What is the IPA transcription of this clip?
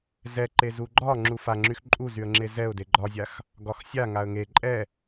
z ɛ ǃ e z u ɡ͡ǃ ɒ ŋ͡ǁ u f a ŋ͡ǁ y x ǃʼ u z y ə̯ ŋ͡ǁ e z ɛ ʊ̯ d e ɡ͡ǃ ɒ zʲ a x | ɡ ɒ x sʲ a ŋ a ə̯ ŋ e ǃʼ ɛ

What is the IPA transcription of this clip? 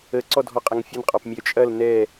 ə ǀ ɔ dʱ ɔ qʼ ɐ ŋ fʲ ɐ n qʼ ɒ p mʲ œ t͡ʃʼ ɐ l n ɛ

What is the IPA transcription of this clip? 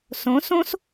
s õ s õ s

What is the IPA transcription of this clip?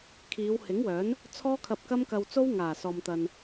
kʰ iː˨˧ w h ɪ˨˥ ŋ w œː˨˥ n | t͡sʰ ɔː˥ kʰ ɐ˧ p̚ k ɐ˥ m k ɐ˧ w t͡s o˥ w ŋ aː˨˩ s ɔː˨ m t̪ ɐ˨ n

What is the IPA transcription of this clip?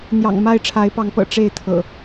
n̪ j ɑ̰˨˩ ŋ m a˥˨ ɪ̯ ʈ͡ʂʰ a˨˦ ɪ̯ p ɑ˨˦ ŋ p ɤ̰˨˩ ʈ͡ʂ e˥˨ ɪ̯ t̪ʰ ɤ̰˨˩

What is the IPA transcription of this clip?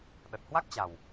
ɗ ə˨˩ t̚ h w a˦˥ k̚ t͡ɕ a˨˩ w

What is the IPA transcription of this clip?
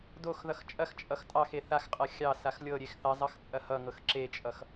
d o x ð ʌ x t͡ʃʼ ɐ x t͡ʃʼ ʌ x tʼ ɑ x e θ a x qʼ ɤ xʲ ɑ s a x lʲ ɤ ɾʲ e x θ ɐ zˤ ʌ x t͡sʼ ɐ h ʌ ŋ ɤ x ǁ e t͡ʃʼ ʌ x

